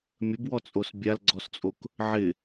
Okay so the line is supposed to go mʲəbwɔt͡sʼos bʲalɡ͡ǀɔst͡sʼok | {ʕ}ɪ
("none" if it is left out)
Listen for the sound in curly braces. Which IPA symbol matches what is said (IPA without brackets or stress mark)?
ʕ